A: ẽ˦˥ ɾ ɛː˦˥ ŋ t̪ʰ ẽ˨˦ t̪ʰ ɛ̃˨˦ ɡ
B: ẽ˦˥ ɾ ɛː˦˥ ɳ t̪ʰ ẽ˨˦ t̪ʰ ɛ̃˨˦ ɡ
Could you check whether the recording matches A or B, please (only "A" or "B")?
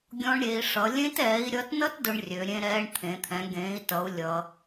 B